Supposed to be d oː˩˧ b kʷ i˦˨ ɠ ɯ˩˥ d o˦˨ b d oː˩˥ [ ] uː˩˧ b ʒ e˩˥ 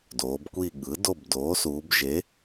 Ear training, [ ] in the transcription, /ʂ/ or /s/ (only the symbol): s